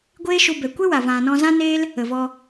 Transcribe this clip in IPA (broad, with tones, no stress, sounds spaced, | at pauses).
ɡʷ eː˦ ʃ u˧ b ɛ˨ kʷ e˦ w a˨ v ã˨ n ɔ̃˧ z ã˦ n eː˦ l | ə˨ v ɔ˧